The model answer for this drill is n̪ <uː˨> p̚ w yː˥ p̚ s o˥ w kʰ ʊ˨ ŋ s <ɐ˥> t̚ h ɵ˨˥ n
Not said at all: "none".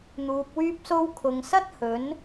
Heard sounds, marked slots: uː˨, ɐ˥

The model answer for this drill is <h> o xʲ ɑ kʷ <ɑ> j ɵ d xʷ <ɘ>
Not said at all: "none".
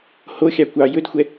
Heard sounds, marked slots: h, ɑ, ɛ

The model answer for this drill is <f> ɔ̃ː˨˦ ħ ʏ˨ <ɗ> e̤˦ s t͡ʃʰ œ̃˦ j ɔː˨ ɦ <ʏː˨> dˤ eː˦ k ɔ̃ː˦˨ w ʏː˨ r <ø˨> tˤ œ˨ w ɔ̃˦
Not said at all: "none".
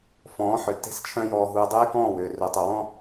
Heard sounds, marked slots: f, t, uː˨, ø˨

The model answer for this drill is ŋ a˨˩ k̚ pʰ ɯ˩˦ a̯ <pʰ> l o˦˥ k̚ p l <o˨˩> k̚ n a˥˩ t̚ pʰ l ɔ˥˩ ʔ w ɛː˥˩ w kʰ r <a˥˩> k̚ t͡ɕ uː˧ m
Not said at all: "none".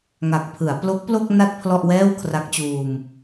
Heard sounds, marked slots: p, o˥˩, a˦˥

